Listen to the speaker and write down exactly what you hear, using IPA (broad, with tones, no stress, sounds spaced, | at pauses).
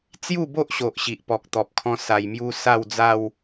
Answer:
t͡s j u˥˧ b o˦ ʔ ɕ o˨ ʔ ɕ i˨ ʔ p ɔ˨ k̚ t̪ ɔ˨ p̚ kʰ ɔ̃˧ s a˨˩ j m j u˧ s a˥˧ w d͡z a˥˧ w